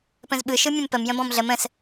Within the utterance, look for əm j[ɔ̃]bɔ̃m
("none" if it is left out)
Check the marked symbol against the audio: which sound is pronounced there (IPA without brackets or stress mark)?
ə̃